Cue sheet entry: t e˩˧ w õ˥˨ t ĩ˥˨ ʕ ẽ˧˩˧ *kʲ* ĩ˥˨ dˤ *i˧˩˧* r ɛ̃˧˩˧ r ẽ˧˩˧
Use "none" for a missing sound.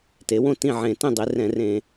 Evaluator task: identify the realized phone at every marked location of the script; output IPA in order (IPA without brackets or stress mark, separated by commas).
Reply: t, i˩˧